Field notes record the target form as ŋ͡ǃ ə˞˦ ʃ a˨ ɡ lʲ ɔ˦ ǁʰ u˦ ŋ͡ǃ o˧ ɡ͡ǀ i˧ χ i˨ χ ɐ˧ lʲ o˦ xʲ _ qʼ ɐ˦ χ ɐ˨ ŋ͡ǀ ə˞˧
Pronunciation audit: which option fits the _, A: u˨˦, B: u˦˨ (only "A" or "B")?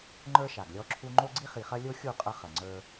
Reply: B